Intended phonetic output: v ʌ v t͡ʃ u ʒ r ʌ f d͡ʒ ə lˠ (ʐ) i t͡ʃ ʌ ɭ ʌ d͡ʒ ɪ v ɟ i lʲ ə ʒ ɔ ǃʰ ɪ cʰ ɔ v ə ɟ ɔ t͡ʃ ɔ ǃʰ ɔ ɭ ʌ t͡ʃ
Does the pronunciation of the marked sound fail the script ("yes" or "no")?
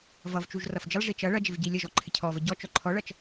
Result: no